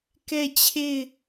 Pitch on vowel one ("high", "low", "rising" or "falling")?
falling